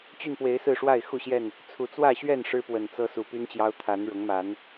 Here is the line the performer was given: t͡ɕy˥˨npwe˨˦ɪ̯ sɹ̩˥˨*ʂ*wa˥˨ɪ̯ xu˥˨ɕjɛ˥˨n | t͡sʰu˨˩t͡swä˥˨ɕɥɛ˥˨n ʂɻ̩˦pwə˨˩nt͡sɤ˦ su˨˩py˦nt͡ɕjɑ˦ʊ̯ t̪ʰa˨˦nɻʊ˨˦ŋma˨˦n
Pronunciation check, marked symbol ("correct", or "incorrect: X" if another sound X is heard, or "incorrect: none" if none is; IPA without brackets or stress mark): correct